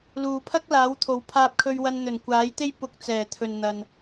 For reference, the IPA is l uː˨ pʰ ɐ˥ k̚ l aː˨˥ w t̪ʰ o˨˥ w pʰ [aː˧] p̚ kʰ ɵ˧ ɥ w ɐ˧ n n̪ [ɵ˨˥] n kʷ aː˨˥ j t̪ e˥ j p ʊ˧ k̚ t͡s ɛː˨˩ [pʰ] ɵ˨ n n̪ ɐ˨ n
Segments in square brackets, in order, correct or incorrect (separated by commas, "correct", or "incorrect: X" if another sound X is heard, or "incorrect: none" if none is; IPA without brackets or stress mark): correct, incorrect: ɵ˨˩, incorrect: t̪ʰ